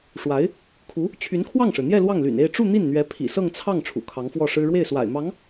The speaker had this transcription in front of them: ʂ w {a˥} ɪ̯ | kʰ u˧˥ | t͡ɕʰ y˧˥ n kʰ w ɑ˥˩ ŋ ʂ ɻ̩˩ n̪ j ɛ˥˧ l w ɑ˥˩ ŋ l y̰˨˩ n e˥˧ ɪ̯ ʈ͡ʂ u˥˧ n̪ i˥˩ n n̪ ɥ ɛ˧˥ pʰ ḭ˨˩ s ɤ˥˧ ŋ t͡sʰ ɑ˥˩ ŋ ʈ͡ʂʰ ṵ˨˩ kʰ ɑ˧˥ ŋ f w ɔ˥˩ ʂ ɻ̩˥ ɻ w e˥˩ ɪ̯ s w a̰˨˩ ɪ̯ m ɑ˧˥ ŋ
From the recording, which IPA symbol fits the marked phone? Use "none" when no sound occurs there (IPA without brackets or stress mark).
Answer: a˧˥